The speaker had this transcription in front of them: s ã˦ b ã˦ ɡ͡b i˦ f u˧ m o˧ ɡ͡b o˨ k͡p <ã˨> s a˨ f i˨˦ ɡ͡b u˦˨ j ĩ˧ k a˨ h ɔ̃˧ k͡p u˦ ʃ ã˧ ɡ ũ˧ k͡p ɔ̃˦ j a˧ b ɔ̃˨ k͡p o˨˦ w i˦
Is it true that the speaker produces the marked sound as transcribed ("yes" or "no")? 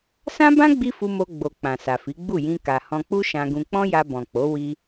yes